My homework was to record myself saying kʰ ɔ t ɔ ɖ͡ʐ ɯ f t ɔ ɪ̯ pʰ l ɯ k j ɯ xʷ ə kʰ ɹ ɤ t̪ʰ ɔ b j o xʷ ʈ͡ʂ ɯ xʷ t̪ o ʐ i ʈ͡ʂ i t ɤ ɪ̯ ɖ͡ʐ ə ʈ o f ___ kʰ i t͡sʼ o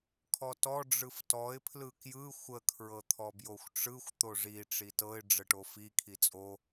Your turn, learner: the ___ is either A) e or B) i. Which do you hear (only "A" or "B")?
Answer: B